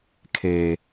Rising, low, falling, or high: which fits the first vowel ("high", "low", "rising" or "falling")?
low